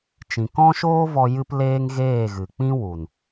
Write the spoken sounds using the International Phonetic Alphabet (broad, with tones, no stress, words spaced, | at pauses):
t͡ʃĩ˨kɔ̃˦ʃoː˦vɔ˧ jɨ˦pleː˦ŋ ɣeː˦˨ɣɨ˨k͡pĩ˦ wu˨n